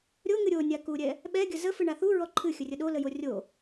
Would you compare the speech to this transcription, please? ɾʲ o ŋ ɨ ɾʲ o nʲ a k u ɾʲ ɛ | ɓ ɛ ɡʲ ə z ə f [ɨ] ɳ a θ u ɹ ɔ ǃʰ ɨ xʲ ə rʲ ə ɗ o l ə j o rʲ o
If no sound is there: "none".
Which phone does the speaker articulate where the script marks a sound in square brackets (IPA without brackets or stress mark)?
ɨ